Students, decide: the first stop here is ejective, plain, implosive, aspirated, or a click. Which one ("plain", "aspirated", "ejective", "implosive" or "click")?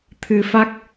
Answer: aspirated